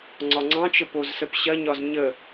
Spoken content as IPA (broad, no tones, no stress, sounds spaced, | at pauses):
ŋ͡ǀ ɒ ŋ͡ǀ ɑ̃ t͡ʃ ə p o z s ə p ɕ ɐ ɲ ɒ z ɲ ə